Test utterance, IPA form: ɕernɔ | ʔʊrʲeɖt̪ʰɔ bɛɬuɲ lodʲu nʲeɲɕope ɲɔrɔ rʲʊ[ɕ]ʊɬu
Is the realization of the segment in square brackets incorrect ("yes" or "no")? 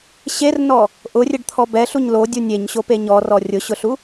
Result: no